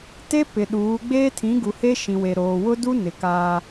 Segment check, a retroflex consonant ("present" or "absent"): absent